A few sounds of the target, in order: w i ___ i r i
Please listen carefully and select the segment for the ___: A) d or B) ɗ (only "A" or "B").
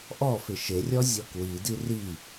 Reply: A